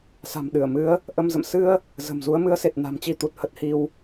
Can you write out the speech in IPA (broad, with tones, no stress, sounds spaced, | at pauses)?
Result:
s a̤˨˩ m ɗ ɨ˧˩ ə̯ m ɨ˨˦ ə̯ | ʔ ə˧ m z ə̰˧˨ m s ɨ˧ ə̯ | z ə̤˨˩ m z u˨˦ ə̯ m ɨ˨˦ ə̯ s e˨˩ t̚ n a̤˨˩ m t͡ɕ i˧ t̪ u˨˩ t̚ h ə˦˥ t̚ h i˧ w